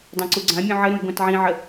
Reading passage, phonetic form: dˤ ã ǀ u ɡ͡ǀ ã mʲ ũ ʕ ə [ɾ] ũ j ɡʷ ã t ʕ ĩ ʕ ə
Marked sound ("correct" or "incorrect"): correct